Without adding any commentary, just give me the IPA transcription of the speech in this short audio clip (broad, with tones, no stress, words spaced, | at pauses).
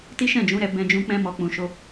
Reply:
ti˦ ʃɛ̃˦˨d͡ʒũ˨˦ɾɛ˧ bɛ̃˧d͡ʒũ˧ k͡pɛ̃˦mɔ˧ k͡pũ˨ʃo˧